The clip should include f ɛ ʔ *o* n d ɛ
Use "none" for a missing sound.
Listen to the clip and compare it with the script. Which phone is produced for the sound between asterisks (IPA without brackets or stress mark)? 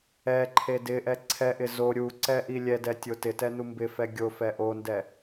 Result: o